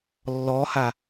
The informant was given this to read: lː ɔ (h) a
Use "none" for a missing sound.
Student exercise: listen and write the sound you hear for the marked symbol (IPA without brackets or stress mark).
h